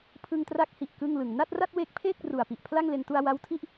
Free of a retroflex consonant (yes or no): yes